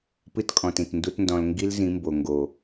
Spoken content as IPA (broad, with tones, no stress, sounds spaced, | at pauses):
p ɨ˦ t kʼ ɔ̃˨ t ĩ˨ t n d u˦ t n d ɔ̃˧ l ŋ ɡ i˦ l z ĩ˨˦ m b o˨ ŋ ɡ o˨